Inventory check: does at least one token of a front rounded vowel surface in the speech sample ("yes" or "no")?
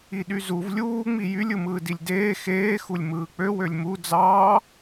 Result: yes